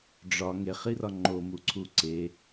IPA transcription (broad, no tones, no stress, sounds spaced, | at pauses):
ɖ͡ʐ ɒ ŋ e χ i r ɒ ŋ͡ǃ o m u ǀʰ u ǀ e